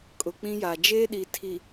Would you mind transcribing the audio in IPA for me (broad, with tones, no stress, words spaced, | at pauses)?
kʼʊ˨k͡pĩ˦ja˨ d͡ʒeː˦ɗi˨tʰi˨